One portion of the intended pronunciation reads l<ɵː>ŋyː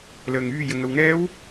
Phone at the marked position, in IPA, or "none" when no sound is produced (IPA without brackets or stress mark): əː